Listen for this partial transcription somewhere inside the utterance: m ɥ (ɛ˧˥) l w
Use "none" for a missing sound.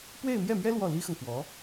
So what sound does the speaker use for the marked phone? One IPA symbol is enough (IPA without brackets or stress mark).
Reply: ɛ˥